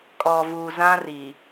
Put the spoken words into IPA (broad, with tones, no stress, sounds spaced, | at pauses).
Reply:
kʼ ɔ˨ v uː˨ z ã˦ r iː˨